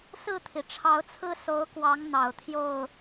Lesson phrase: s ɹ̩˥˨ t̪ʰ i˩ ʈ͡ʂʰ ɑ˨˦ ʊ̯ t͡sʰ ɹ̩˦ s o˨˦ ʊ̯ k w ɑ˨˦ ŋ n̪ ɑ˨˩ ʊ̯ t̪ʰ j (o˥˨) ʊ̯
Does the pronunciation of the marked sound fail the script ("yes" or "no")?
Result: no